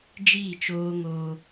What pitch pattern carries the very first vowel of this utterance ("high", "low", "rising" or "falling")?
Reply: falling